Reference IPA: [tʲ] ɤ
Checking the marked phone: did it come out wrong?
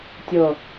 no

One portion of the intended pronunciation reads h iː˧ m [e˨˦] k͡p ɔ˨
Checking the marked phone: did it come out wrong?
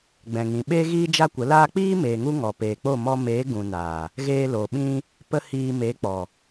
no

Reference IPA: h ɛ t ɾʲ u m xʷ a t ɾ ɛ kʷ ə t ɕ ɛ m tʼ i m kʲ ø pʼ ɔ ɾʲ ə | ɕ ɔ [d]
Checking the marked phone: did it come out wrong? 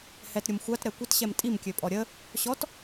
yes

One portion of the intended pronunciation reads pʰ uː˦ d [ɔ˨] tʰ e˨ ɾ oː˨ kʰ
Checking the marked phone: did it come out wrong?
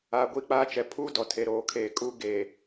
no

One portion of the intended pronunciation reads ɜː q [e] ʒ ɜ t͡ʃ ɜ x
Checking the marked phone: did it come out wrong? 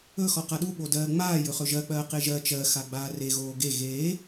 no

